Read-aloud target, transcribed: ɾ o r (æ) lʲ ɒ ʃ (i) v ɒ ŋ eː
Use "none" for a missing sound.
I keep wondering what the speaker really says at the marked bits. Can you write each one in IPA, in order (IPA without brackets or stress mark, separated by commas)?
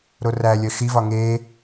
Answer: æ, i